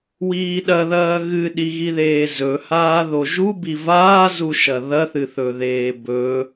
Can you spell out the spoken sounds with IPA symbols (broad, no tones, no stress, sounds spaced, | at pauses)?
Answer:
w iː ɗ ɐ ð ɐː ɣ ɨ ɗ i ɣ i ð eː z ɵ h aː ð o ʒ u b i v aː z u ʃ ɐ ð ɐ θ ɨ θ ɵ ð eː b ɵ